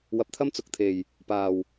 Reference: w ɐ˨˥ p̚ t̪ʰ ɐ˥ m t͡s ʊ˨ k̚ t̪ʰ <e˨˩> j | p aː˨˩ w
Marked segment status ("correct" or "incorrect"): correct